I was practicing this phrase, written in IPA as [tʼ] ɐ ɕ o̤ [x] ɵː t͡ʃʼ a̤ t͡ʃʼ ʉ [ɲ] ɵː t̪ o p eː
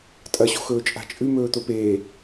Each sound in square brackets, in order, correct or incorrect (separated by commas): correct, correct, incorrect